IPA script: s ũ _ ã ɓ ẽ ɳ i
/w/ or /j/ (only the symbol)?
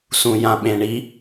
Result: j